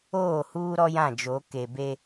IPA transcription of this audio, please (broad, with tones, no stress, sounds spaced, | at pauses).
oː˦˨ h uː˦ ɾ ɔ˦ j ã˦˨ d͡ʒ o˨˦ k e˨ b e˦